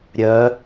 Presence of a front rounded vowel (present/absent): present